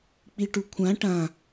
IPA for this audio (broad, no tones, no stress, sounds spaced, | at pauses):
k͡p i ʈ u kʷʰ ã ʈ ã